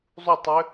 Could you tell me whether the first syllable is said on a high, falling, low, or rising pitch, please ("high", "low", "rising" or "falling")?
falling